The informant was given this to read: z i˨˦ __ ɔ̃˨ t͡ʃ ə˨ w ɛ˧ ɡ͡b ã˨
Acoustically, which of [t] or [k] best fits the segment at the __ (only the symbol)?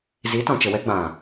t